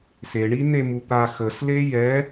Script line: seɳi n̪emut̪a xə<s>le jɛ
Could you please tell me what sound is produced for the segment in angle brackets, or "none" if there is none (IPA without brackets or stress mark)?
s